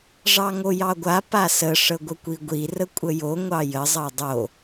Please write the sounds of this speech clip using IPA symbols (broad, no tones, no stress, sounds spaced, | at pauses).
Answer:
ʐ ɑ ŋ o j ɑ ɡʷ a p a s ə ʂ ə ɡʷ ə kʷ i ɡʷ i r ə kʷʼ ə j o ŋʷ ɑ j ə zˤ ɑ dˤ o